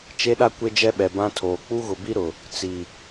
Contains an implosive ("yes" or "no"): yes